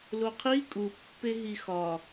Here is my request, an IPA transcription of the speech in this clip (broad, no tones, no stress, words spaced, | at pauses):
loqʰi kʼu pːeɦixɒ